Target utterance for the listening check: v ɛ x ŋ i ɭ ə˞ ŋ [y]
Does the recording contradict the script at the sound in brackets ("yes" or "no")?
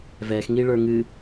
yes